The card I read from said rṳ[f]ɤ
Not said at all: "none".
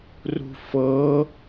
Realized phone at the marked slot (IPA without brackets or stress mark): f